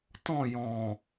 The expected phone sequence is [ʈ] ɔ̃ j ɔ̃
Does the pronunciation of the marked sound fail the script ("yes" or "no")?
yes